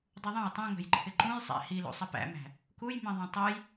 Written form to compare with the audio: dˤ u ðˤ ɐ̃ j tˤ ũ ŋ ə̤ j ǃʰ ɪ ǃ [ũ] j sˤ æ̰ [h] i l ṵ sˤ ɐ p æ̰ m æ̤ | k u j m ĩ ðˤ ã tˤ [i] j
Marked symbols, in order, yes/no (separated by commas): yes, yes, no